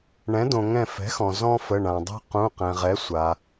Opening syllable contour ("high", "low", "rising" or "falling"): rising